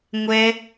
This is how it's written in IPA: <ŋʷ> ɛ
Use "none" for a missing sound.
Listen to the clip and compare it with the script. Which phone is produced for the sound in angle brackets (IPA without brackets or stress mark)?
ŋʷ